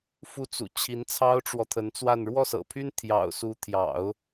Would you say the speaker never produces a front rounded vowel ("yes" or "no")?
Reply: no